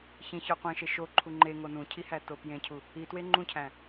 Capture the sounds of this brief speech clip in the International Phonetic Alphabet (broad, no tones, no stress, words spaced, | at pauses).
çĩçɒ qʷẽʃe ʃo ǃʰuŋ͡ǃe ŋonũcʰihæ topjẽcʰu | itwe ŋ͡ǃũcʰæ̃